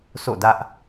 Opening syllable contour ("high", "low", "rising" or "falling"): falling